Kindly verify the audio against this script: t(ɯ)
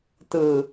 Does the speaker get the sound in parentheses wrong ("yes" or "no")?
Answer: no